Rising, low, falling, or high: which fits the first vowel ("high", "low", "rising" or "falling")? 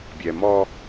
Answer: low